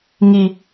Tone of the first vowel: low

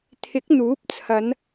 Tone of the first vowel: rising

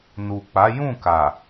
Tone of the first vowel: low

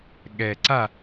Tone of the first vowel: low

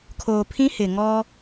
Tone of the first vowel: low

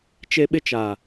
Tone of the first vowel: high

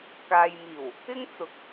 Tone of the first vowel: low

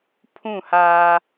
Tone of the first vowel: falling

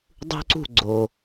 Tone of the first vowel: high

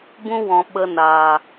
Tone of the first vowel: high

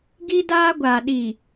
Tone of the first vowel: high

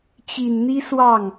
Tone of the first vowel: low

